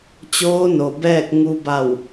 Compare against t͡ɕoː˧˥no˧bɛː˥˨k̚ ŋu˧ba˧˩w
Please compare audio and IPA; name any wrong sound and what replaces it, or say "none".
o˧ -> o˩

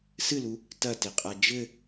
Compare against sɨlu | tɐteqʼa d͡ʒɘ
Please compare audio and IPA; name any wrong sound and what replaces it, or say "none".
none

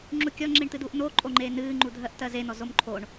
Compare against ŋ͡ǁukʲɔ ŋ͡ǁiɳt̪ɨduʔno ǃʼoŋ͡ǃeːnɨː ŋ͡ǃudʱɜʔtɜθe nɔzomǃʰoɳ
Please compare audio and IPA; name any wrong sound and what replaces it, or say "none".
θ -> z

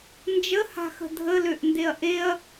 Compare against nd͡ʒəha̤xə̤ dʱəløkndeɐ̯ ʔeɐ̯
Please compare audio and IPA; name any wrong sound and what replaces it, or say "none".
k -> ʔ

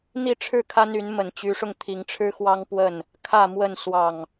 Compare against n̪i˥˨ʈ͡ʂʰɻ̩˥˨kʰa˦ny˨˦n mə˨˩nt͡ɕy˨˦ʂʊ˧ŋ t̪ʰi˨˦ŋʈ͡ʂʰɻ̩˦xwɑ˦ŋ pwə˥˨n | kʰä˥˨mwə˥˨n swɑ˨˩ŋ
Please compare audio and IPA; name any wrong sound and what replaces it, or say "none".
none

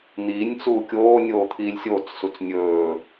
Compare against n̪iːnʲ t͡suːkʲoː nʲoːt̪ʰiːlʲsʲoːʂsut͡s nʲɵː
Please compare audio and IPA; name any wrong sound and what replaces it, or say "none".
ʂ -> t͡s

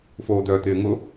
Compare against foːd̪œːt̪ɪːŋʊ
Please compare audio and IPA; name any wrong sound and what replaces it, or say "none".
none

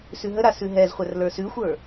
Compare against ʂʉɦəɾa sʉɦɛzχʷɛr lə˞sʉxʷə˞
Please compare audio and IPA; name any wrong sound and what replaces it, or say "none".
ʂ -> s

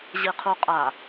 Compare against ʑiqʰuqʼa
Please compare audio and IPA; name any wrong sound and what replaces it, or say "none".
none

